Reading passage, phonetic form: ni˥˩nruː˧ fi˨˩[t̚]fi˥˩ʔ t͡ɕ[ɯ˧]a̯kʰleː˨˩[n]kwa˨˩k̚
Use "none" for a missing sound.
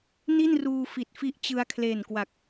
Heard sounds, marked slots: t̚, ɯ˧, n

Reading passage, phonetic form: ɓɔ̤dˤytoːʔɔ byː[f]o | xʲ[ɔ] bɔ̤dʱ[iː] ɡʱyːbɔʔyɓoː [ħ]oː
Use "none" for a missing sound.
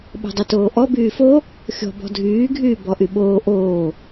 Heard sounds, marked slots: f, ɔ̤, yː, ʔ

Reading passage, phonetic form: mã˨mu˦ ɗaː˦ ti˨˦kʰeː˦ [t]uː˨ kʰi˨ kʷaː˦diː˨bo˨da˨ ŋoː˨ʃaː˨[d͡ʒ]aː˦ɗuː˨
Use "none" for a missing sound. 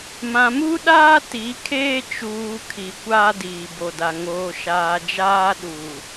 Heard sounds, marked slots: t͡ʃ, d͡ʒ

